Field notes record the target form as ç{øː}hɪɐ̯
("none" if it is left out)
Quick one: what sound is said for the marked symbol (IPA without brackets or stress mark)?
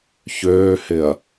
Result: øː